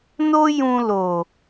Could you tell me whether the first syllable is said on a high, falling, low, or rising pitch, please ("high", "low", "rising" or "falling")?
high